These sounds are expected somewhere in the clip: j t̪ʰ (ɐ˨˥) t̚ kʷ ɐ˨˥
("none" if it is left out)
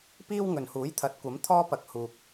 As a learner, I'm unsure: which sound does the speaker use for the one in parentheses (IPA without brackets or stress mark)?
ɐ˨˥